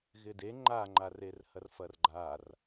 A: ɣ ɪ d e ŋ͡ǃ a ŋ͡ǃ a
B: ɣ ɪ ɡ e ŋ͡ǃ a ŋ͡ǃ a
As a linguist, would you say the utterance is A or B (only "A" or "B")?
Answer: A